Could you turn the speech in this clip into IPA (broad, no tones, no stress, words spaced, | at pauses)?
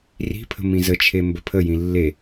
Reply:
ri̤pʰə̤ mĩzət͡ʃʰe mbəpʰəjĩ lːe